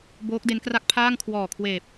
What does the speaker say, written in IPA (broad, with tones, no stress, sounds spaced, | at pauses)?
b oː˦˥ k̚ d e˦˥ n k r a˥˩ k̚ pʰ aː˥˩ ŋ kʰ w ɔː˨˩ kʰ w eː˨˩ p̚